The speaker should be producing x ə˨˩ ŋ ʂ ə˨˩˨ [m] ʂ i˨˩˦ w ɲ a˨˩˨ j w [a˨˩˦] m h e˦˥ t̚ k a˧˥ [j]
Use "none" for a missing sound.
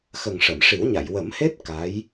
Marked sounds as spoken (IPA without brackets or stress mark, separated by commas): m, ə˨˩˦, j